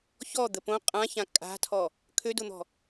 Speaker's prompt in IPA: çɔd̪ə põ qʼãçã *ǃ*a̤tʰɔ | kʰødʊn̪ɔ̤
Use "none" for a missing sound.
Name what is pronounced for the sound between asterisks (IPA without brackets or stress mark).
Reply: kʼ